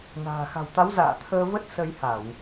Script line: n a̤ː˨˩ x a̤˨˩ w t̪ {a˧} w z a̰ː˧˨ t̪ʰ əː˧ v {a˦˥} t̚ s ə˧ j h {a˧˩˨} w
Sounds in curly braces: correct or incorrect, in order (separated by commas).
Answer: incorrect, incorrect, correct